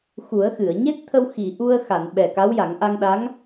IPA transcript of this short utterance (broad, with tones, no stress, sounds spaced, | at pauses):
x u˨˩˦ ə̯ x ɨ˨˩˨ ə̯ ɲ e˦˥ t̚ t̪ʰ ə˧ w x i˨˩˨ ʔ u˧ ə̯ x a˨˩˨ n ɓ ɛ˨˩ k a˧˥ w j a˨˩˦ ŋ ʔ a˧ ŋ ɗ a˧˥ ŋ